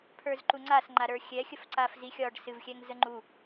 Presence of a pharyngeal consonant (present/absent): absent